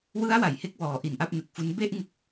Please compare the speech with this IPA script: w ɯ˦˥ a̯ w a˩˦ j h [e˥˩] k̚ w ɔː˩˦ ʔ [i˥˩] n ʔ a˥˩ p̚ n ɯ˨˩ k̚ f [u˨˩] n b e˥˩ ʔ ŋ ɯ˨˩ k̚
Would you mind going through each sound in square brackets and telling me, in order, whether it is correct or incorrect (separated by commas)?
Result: incorrect, incorrect, incorrect